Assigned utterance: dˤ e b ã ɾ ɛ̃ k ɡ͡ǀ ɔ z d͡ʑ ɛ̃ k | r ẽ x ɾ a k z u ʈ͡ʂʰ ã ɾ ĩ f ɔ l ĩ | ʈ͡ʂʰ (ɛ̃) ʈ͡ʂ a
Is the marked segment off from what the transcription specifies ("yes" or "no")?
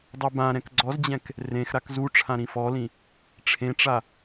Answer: yes